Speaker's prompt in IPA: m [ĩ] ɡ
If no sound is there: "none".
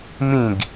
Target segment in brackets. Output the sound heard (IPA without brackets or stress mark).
ĩ